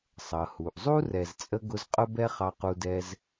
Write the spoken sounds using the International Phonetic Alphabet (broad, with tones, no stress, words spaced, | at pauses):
sˤʌ˩hu˩ʔzˤu˦ rɛ˨zt͡sʼə˦ ɡʊ˦zqʼʊ˥bɛ˥ χɑ˦qu˦dɛ˥z